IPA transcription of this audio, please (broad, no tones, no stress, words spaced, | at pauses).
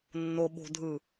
nːoɓo̤dʱɯ